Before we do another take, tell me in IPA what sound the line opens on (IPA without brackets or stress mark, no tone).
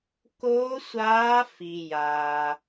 k